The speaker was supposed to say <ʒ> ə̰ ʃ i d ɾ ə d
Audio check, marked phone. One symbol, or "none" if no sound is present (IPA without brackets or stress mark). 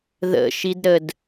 ð